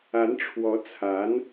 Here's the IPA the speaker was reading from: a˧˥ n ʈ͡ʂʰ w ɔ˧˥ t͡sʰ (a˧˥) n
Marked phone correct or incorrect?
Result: correct